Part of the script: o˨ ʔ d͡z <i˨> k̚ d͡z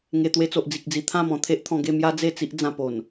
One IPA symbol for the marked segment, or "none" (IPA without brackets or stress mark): i˨